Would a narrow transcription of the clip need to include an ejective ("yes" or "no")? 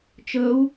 no